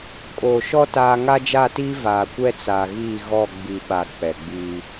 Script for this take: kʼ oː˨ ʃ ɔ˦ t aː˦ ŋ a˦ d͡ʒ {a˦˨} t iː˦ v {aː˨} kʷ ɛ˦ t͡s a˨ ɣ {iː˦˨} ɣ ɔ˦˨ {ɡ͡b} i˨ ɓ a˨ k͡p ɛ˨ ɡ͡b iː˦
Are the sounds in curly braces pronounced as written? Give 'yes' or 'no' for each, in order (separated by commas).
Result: yes, yes, yes, yes